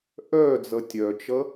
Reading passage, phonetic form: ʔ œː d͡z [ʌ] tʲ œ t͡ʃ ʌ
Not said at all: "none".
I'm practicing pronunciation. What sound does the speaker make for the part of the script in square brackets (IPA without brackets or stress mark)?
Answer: ʌ